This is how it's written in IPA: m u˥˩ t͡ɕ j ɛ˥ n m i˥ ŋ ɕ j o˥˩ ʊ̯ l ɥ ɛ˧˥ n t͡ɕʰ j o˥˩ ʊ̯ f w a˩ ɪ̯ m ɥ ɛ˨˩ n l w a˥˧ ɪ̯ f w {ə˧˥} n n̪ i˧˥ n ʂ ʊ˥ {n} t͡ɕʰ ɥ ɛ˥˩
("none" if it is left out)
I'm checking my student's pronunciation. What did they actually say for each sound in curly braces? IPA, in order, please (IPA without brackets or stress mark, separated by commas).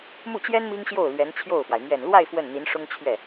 ə˥˩, ŋ